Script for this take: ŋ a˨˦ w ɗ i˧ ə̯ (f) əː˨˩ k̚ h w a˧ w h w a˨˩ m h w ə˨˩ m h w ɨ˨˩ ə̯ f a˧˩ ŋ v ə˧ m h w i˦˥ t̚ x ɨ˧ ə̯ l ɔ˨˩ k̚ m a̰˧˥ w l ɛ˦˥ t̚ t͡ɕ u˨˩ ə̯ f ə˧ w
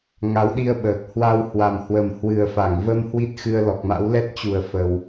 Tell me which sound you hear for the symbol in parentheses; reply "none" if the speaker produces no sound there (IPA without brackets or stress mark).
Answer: ɓ